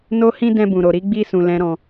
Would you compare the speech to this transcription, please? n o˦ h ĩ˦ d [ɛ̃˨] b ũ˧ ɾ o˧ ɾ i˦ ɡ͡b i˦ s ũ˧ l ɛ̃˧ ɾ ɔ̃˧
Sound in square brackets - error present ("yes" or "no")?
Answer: yes